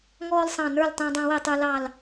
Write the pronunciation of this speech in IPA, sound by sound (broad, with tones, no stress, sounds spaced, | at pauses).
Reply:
ŋ ɔː˦ l sˤ ɑ̃˧˩ n ə˞˥˨ l tˤ æ̃˦ dˤ ɑ̃˦ w ɛ˥˨ tˤ ə˞˦ l ɑ˧˩ l